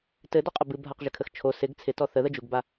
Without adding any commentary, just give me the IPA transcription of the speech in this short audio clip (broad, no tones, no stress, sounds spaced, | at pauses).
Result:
t ɘ d ɔ qʼ ə b ɨ bʱ a q ʒ ɘ kʰ ə x t͡ʃʰ o s ɪ ɡ t͡sʰ ɪ t ɔ θ ə ð ə d͡ʒ u ɡ b a